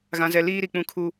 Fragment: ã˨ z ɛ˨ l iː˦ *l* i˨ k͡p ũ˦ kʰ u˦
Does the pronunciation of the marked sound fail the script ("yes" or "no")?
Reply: yes